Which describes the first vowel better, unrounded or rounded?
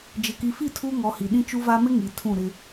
unrounded